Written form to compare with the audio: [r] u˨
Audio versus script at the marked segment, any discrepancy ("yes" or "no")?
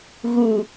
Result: yes